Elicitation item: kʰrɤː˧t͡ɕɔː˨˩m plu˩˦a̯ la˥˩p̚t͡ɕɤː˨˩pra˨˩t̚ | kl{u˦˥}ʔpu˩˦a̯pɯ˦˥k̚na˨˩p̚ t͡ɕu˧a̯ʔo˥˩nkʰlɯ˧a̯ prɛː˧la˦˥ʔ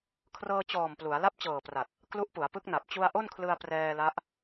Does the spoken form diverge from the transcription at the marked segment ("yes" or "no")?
no